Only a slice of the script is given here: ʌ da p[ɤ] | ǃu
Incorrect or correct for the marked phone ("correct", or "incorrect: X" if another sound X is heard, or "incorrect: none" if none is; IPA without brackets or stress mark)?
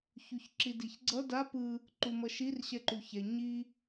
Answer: incorrect: ɯ